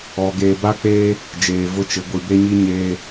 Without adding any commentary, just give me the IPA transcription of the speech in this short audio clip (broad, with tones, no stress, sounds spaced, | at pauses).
ɔ˨ ɡ eː˨ b a˦ k͡p eː˦ | d͡ʒ eː˨ v ʊ˦ t͡ʃ ɪ˨˦ ɡʷ i˨ b e˦ ɲ i˦ ɲ eː˦